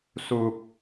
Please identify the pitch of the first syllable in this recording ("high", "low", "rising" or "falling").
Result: low